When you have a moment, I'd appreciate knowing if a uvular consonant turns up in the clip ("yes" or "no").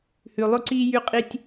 yes